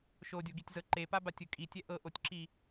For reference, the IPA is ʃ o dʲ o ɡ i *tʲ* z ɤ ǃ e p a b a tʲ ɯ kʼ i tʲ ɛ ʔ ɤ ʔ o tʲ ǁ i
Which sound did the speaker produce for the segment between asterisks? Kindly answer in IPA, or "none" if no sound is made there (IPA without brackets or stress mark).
tʲ